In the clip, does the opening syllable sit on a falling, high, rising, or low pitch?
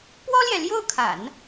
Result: high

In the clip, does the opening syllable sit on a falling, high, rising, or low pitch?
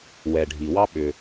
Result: low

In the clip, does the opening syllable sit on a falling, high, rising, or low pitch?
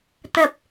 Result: low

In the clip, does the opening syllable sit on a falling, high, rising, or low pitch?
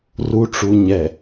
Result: low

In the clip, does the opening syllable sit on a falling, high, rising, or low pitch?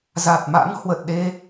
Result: low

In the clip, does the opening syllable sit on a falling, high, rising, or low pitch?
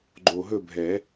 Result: low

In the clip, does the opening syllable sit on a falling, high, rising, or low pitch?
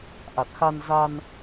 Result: low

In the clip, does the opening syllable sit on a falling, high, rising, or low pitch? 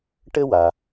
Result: high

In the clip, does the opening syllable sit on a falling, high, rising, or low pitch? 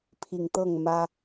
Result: low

